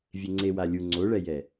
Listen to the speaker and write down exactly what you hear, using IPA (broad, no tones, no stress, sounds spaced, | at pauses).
vʲ e ŋ͡ǀ e w a lʲ u ŋ͡ǀ o ɭ ɛ j ɛ